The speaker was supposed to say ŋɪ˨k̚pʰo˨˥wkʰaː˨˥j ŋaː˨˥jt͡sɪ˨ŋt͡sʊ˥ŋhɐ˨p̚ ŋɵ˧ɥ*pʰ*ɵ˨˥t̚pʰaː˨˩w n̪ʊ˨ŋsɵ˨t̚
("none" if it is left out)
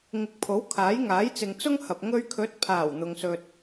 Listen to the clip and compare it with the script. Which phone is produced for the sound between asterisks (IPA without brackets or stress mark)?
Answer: kʰ